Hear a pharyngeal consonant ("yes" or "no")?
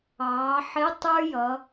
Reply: yes